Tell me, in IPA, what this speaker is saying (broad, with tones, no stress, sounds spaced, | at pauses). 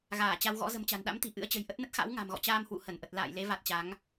ɣ aː˧˩ t͡ɕ a˧ w ɣ ɔ̰˧˥ z ə̤˨˩ m t͡ɕ a̤˨˩ n ɗ a̰˧˥ m t̪ i̤˨˩ ʔ ɨ̰˧˥ ə̯ t͡ɕ ə̤˨˩ j ʔ ə˦˥ t̚ n ə˦˥ t̚ x a̰˧˥ w ŋ a̤˨˩ m ɣ ɔ̰˧˨ t͡ɕ aː˧ m h w ṵ˧˨ h ə˧˩ n ʔ ə˨˩ t̚ l a̰ː˧˨ j l e˨˦ v a˨˩ t̚ t͡ɕ a˨˦ ŋ